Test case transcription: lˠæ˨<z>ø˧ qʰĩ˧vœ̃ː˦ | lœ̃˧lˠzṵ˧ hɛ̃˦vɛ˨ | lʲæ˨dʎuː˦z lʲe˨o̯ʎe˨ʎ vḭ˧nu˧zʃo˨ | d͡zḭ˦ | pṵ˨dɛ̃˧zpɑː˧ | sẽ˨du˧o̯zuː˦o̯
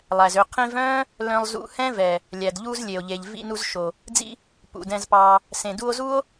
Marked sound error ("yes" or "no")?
no